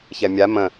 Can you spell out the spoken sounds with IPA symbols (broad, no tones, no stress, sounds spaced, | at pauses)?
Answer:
ç ɛ mʲ a m ə̃